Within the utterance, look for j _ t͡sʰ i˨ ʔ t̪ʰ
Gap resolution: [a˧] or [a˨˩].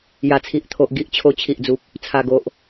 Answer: a˨˩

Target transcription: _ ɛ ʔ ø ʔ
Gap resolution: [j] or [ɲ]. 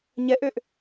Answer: ɲ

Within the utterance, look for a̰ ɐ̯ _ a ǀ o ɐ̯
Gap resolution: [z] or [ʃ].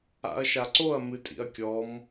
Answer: ʃ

